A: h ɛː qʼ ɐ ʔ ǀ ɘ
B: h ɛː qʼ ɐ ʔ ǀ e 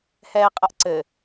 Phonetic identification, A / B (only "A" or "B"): A